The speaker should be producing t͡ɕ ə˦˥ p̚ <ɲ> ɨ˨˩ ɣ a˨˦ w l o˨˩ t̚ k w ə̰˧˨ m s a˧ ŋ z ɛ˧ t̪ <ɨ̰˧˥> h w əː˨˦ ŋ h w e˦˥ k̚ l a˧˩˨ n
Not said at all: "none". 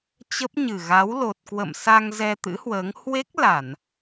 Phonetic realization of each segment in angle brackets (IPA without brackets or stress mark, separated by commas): ɲ, ɨ̰˧˥